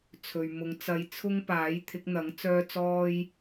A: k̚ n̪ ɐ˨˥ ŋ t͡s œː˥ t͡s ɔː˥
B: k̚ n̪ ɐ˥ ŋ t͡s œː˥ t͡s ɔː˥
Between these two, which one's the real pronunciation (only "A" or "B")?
A